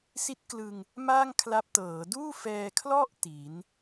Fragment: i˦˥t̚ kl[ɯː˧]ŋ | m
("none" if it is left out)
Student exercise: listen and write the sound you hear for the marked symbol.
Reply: ɯ˧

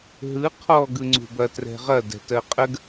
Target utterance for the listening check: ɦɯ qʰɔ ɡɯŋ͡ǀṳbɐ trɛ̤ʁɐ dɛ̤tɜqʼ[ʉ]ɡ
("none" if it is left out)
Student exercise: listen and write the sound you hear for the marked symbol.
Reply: ə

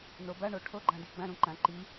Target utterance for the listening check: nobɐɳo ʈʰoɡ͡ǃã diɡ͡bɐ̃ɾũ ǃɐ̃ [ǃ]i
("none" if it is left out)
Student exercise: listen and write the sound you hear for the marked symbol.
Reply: ǃ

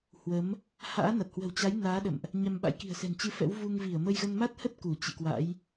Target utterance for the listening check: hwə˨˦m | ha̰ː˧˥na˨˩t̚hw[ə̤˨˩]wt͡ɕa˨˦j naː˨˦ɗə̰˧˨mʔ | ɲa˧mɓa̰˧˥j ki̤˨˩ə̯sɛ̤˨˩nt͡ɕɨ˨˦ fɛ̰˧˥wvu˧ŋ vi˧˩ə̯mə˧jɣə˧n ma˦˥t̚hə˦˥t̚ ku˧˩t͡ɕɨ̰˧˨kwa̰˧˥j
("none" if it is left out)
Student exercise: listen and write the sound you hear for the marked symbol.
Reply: ə̤˨˩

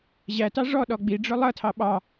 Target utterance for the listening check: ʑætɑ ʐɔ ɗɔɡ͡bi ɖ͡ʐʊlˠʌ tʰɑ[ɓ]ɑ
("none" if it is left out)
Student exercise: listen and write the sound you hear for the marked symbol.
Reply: ɓ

